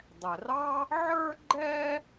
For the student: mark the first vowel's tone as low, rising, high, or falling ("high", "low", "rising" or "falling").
low